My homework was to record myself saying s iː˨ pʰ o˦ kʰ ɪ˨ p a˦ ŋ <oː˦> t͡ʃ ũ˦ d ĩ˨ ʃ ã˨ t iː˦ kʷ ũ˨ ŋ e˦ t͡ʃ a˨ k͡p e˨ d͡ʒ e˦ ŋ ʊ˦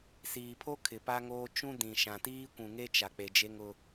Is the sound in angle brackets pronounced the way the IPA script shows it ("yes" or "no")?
yes